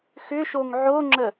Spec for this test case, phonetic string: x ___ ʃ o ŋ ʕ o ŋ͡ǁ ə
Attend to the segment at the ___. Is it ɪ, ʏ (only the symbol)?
ʏ